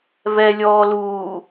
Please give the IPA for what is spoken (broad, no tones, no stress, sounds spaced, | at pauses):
v ɛ lʲ ɔː l uː